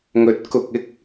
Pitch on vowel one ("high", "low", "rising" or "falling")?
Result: rising